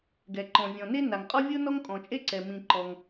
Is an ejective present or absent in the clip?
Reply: present